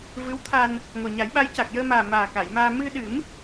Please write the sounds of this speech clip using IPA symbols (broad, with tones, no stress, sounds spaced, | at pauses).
v ɨ˧˥ w t̪ʰ a˧ n | ŋ o˨˩ ɲ a˨˩˦ j ɓ a˧˥ j c a˨˩ k̚ j əː˧ m aː˨˩ m aː˨˩ k a˨˩˨ j m aː˧ m ɨ˧ ɗ ɨ˨˩˦ m